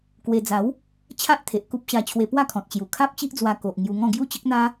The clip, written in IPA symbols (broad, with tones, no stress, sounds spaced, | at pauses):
k w e˧ d͡z a˨˦ w | t͡ɕʰ a˦ ʔ t̪ʰ e˨ ʔ k u˦ p̚ ɕ a˧ t͡ɕʰ w e˧ p w a˥˧ kʰ ɔ̃˨ t̚ t͡ɕ j u˨˩ kʰ a˦ p̚ t͡ɕ i˦ ʔ d͡z w a˧ k o˨ ʔ ŋ j u˧ ŋ ɔ̃˥˧ ɡ j u˥˧ t͡ɕ ə˦ k̚ n̪ a˦